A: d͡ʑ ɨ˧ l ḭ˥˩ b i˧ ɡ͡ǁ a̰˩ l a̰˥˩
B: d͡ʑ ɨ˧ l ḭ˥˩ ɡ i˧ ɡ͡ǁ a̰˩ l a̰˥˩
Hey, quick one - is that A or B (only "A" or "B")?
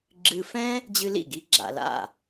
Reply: B